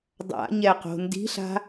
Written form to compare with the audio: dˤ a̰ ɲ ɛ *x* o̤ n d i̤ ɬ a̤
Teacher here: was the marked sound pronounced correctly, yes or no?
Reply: no